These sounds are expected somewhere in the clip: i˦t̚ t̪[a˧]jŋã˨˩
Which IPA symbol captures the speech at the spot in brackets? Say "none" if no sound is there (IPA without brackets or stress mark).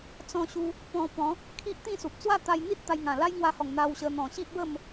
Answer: a˧